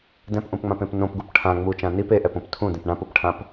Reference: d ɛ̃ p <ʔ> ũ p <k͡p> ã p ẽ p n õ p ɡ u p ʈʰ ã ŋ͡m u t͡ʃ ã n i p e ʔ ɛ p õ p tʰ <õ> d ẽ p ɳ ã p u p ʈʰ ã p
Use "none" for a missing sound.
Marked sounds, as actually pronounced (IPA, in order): ʔ, ŋ͡m, ũ

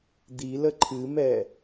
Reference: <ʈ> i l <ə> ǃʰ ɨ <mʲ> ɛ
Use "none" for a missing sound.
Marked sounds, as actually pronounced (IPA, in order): d̪, ə, m

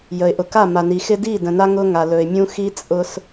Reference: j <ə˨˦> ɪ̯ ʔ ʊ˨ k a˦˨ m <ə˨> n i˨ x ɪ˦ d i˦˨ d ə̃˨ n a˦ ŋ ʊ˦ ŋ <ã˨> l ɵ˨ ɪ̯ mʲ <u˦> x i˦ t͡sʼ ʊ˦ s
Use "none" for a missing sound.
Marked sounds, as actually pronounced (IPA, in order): ə˨, a˨, a˨, ũ˦

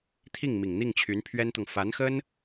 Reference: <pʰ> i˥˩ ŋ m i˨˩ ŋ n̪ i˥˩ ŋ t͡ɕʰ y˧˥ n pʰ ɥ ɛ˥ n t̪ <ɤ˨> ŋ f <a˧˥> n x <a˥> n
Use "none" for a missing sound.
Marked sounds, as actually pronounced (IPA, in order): t̪ʰ, ɤ˨, a˧˥, ə˥

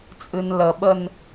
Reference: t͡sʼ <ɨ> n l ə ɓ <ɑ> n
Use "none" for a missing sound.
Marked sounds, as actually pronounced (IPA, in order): ɨ, ə

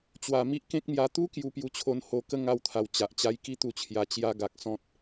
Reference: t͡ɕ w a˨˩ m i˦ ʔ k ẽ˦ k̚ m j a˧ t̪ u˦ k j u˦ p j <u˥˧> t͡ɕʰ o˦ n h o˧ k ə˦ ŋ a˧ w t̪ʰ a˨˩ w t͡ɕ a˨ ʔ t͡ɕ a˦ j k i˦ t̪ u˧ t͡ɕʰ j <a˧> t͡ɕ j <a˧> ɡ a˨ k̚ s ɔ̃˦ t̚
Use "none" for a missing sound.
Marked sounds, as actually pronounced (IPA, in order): u˥˧, a˧, a˦

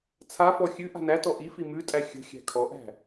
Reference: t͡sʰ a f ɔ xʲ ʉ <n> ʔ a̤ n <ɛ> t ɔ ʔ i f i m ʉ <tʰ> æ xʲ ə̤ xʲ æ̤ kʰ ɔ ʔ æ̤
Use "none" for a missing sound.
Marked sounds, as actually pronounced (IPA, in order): none, æ, tʼ

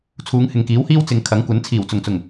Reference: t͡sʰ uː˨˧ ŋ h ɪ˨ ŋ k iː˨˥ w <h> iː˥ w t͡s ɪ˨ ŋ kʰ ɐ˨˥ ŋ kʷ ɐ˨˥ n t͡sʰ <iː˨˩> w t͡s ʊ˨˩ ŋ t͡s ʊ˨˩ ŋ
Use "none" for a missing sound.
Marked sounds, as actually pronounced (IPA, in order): h, iː˨˩

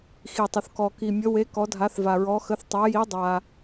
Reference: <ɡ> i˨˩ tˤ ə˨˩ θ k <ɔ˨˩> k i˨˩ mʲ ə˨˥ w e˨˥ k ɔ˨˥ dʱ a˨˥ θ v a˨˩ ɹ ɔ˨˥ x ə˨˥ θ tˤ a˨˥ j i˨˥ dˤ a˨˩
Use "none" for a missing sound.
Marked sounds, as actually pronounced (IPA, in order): x, ɔ˨˩

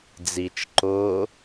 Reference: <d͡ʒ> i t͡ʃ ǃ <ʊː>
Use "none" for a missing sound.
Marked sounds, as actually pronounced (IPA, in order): d͡z, ʊː

